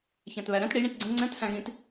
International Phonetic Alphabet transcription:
ç æ̃ t β æ ɾ ɛ̃ t ɽ i ɳ ĩ t ɡ͡ǀ ə̃ ŋ͡ǀ ɛ̃ t h æ̃ ɣ ĩ t

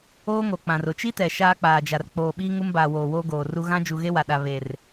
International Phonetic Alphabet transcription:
oː˦ ŋ o˨ k͡p ã˨ r ʊ˨ t͡ʃ i˦ t ɛ˨ ʃ aː˦ k͡p aː˨ d͡ʒ a˨ r k͡p oː˨ ɓ iː˦ ŋ u˦ m b aː˨ w oː˨ w oː˦ ɡ oː˨ r u˦ ɣ ã˦ d͡ʒ u˨ ɣ e˦ w a˨ ɗ a˨ β e˨ r

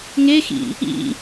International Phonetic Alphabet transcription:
ŋ e x ḭ | ḭ

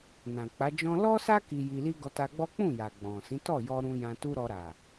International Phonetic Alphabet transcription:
n ã˨ k͡p a˨˦ d͡ʒ ɔ̃˧ l ɔ˦ s a˦ k i˧ j i˧ l i˦ ɡ ɔ˧ t a˧ ɡ͡b ɔ˦ k͡p ũ˦˨ j a˨ ɡ͡b ɔ̃˨ s ĩ˨˦ t ɔ˦˨ j ɔ˧ ɾ ũ˧ j ã˧ t u˦ ɾ ɔ˧ ɾ a˨

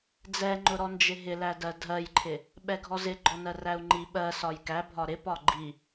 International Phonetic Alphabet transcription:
d͡z ɛ ŋ͡ǃ ʊ ɾ ɔ n d͡ʒ ɪ ɦ ɪ l æ d ɜ dʱ ɜ j ǃʰ ɪ | ɓ ɛ ɡʱ ɔ z ɪ ɡ͡ǃ ɔ n ɜ r æ u̯ ŋ͡ǃ i ɓ ɜ s ɒ j k æ bʱ ɒ ɾ ɪ p ɒ ɡ͡ǃ i

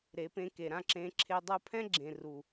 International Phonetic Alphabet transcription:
ɾ e˨˦ p ẽ˧ k e˨ ɾ ã˦˨ ǁ ẽ˧ ǁʰ e˧ dˤ u˧ pʰ ɛ̃˦ ɡ͡ǁ ẽ˨ r u˨

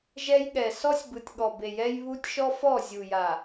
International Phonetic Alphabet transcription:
ʒ ɛ˦ j ɠ ɛ˨ s ɔ˦ sʲ b ɯ˨ tʲ ɠ ɔ˨ b e˨ j ɛ˦ j β u˦ tʲ ʃ ɔ˦ f ɔ˦˨ zʲ u˨ j a˨

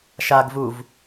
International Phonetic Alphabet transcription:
ʃ a ɡ v u v

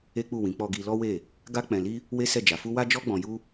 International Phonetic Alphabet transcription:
e˦ k͡p u˦˨ w ĩ˨˦ k͡p ɔ˧ ɡ i˧ l ɔ˦ w e˦˨ | ɡ a˦ k͡p ɛ̃˧ l i˦ | w e˦ s ɛ˦˨ d͡ʒ a˨˦ f u˦ w a˦ d͡ʒ ɔ˦ ɡ͡b ɔ̃˧ j u˦

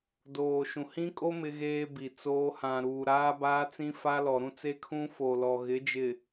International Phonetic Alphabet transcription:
d oː˨ ʃ ũ˨ h ĩ˦ kʼ o˦ m ɪ˦ ɣ eː˦ b i˨ t͡s oː˦ h ã˨ ɾ uː˨ ɾ aː˦ b aː˦ t͡s ĩ˦ f a˦ l ɔ˨ ɾ ũ˦ t͡s e˦ kʰ ũ˦ f o˨ l ɔ˨ ɣ ɪ˨˦ d͡ʒ ɪ˨

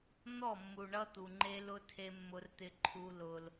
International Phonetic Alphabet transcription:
n̪ ɔ˦˨ mː u˨ ɳ ʌ˦ t̪ u˨ ŋ͡ǃ e˦ l ʊ˦ tʰ e˦ mː ʊ˦ r t̪ ɪ˦ ǃʰ u˦ l ʊ˦ l

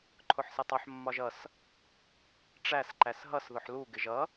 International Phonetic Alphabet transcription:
ǃʰ ʊ ħ s ɪ tˤ ʊ ħ mː ɒ ʒ ʌ s | ʈ͡ʂ æ s ǃ æ s ɦ ʌ s ð ʊ ħ l u ɡ ɪ ʒ ʌ

